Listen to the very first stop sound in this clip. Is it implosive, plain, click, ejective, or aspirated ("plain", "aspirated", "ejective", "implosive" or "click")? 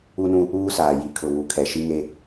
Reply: aspirated